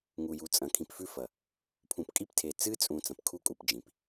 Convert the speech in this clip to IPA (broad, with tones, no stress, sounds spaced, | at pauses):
ŋ u˨ j u˨ t͡sʼ ɐ̃˨ kʰ ĩ˨ p f ʉ˦ f ɐ˨ | pʰ ũ˨ p kʼ i˦ p tʰ e˨ t͡s ɨ˦ t͡sʼ ũ˨ t͡s ɐ̃˨ p kʰ u˦ kʼ u˨ p d͡ʒ ĩ˨ p